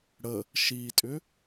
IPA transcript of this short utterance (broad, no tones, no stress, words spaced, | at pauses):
ɽə | ʃitʼʏ